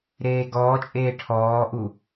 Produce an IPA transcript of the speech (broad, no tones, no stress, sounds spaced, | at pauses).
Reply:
ɾ eː ɡ ɔː t͡ʃʼ eː ʈʰ ɔː ʔ u